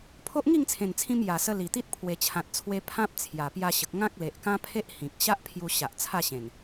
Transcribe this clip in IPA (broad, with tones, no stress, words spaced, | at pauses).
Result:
pʰo˦ʔŋi˥˧ŋt͡sʰẽ˨˩nt͡sʰĩ˧m ja˨˩sə˧ li˨˩t̪i˦t̚ pʰwe˨˩t͡ɕʰã˨t̚t͡sʰwe˧ pʰã˦p̚t͡sʰja˨˩ pja˧ ɕə˨k̚ ŋã˦k̚le˨ʔkã˦pʰe˦ʔ hĩ˨k̚ ɕa˦ʔ pʰju˧ɕa˨ʔ t͡sʰa˥˧ɕẽ˨˩n